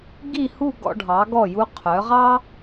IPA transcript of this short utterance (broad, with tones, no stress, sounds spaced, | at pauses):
ɡ i˥˧ h u˥˧ ɡ ɔ̰˧ ɖʱ ɑ˩˧ ɡ ɔ˧˩ j u˧ qʰ œ˩˧ ʁ ɑ˥